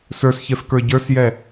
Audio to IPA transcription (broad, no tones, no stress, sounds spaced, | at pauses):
s ə˞ s ç ɛ f k ə˞ ɟ ə˞ s j ɛ